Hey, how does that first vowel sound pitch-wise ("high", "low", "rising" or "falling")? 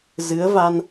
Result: rising